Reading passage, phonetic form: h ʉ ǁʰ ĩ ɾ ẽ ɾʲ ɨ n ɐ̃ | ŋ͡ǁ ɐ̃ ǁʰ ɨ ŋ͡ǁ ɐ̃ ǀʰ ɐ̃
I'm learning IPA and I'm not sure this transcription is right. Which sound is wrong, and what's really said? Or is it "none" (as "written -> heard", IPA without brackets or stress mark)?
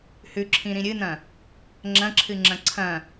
ẽ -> ĩ